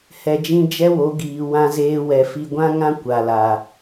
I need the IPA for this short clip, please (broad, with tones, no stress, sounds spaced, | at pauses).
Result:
h ɛ˨ d͡ʒ ĩ˧ d͡ʒ ɛ˦ w o˨˦ ɡ iː˨ w ã˦ z eː˦ w ɛ˧ f i˧ ɡʷ ã˦ ŋ ã˦ kʷ a˨ l a˨